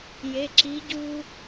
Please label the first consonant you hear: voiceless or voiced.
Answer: voiced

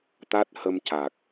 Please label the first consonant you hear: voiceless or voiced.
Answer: voiceless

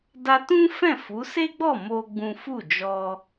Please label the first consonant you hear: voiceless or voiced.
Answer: voiced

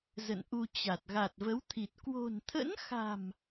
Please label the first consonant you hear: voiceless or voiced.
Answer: voiced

